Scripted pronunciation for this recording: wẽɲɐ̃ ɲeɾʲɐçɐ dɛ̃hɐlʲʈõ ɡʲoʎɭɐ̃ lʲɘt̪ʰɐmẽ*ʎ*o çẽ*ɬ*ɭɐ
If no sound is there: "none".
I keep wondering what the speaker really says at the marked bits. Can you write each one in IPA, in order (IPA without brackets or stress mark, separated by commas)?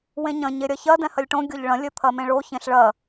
ɭ, ɬ